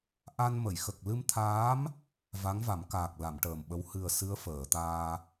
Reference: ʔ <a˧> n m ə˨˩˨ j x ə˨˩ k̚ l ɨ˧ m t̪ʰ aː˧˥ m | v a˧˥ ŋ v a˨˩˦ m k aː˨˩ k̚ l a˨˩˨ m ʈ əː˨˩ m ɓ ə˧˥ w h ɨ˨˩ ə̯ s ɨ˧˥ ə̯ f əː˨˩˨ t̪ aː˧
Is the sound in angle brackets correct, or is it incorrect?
correct